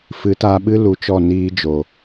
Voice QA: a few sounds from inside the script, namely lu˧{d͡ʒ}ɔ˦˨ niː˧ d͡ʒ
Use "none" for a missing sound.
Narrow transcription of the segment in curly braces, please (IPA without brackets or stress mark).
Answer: t͡ʃ